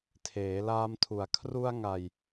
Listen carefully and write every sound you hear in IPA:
tʰeː˩˦laː˧mtʰu˩˦a̯ kʰru˧a̯ŋa˨˩j

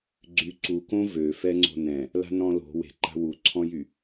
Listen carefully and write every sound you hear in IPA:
ɡ͡ǀy ǀukõ vø fɛŋ͡ǀo̤nɛ̃ | la̤nɔ̃lo̤ we̤ǃa̤ wuǀʰɔ̃jy

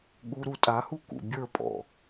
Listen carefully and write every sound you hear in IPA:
ɠuɾu tʼahu kṵbʲə˞pʼɔ̰

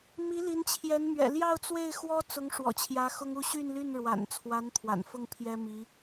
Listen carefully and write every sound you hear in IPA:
mi˧˥li˧˥nt͡ɕʰjɛ˧˥nmɥɛ̰˨˩ ljɑ˥˧ʊ̯t͡swe˥˩ɪ̯ xwɔ˥t͡sʊ˧˥ŋ ʂwɔ̰˨˩t͡ɕʰjä˧˥ xʊ˥ŋu˥˧ ɕy˥˧nly˥˩nɻwa̰˨˩nt͡sʰwa˧˥n t̪ʰwa̰˨˩nfʊ˥˩ŋ pʰjɛ˥ mi˧˥

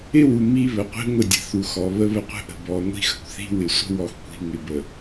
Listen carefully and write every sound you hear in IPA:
ɪ˦wu˨ mi˦βə˨qʷi̤˦ ŋʷɪ˦˨dʲə̤˨θu˨xɔ˨ βə˦βə˦qʷə̤˦ ʔə̤˨ bɔ˨ŋʷi̤˦xə̤˨kʷ θi̤˦wɪ˨sʷə̤˦ wɔ˨xkʷi̤˨ŋɪ˨bə˨

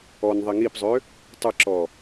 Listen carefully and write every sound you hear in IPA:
ɔnðˤi ŋipzˤø | tˤəǁɔ

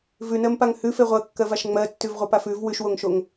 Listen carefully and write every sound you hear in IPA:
vʉnɜmpaŋ hʉfe ʁʷɜkːɜvaʃ ŋ͡mɜtːʉvʁʷapaf ʉv wʉʃwoŋʃoŋ

